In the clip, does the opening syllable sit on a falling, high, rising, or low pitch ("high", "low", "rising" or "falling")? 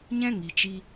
high